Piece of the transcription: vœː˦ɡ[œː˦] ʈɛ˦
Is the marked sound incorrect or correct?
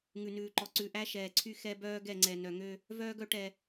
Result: incorrect